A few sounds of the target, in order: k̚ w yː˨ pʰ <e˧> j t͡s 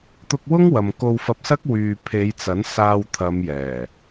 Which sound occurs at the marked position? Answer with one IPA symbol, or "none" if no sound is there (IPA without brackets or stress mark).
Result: e˨˧